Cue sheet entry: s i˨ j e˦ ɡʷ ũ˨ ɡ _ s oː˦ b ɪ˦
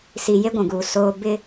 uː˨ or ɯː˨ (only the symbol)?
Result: uː˨